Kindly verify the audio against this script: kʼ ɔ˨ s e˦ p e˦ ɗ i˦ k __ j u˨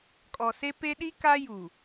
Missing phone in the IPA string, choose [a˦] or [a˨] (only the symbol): a˦